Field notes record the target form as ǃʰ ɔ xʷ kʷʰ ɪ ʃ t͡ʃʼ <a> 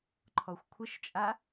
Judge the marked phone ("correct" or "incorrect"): correct